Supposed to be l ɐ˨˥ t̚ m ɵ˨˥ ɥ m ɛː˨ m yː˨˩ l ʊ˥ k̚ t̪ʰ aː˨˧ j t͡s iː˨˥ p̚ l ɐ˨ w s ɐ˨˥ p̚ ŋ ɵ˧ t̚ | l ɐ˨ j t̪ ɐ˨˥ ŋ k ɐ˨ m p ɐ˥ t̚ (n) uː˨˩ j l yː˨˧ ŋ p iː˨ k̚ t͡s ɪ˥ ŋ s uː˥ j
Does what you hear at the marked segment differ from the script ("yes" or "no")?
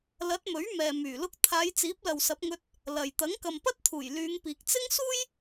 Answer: yes